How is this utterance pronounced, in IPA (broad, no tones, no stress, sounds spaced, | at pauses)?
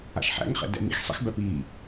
a̰ ʃ ħ æ̰ ŋ χ ɛ̰ d ɛ̰ m ḭ x sˤ ḭ x b æ p i